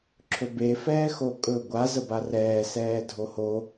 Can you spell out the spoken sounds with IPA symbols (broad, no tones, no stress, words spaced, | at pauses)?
ǁʰɵbe fɛːxokʼɵ ɡʷa zəbarɛː sɛːdʱoho